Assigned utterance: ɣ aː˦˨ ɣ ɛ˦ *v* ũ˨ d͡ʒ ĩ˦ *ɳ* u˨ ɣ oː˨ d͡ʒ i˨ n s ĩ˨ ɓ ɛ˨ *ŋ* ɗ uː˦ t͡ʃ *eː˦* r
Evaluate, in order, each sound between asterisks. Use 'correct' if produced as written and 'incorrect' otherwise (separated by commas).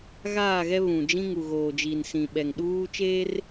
incorrect, incorrect, correct, correct